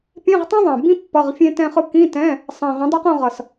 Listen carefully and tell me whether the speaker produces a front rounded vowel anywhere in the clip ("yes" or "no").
no